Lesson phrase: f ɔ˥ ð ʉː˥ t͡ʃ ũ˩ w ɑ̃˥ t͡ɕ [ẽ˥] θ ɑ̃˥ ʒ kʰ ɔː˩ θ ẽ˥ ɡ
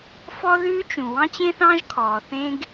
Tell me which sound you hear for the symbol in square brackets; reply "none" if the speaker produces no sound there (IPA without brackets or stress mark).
ẽ˥